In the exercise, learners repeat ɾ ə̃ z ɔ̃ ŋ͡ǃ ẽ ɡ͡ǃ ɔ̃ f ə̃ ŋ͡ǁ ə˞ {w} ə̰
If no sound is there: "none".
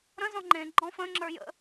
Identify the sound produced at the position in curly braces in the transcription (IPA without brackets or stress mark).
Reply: j